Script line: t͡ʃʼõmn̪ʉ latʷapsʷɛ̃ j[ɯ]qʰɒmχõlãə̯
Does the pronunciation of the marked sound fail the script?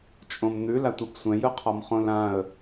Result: no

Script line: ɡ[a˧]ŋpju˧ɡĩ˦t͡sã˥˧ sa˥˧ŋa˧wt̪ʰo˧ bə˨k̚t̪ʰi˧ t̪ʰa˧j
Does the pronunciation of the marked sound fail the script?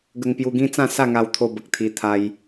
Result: yes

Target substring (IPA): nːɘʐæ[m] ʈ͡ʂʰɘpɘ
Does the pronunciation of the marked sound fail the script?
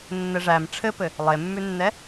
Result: no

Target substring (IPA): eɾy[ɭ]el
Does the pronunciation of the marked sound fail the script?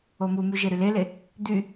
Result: yes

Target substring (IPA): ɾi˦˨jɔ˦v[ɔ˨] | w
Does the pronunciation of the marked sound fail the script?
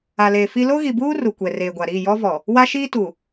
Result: no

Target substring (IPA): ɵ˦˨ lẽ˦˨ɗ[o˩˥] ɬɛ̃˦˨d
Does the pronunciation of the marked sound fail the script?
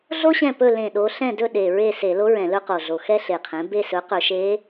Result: yes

